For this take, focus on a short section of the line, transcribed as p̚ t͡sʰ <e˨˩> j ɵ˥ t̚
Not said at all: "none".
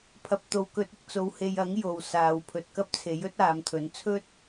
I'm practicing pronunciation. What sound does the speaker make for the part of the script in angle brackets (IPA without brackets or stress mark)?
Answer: e˨˥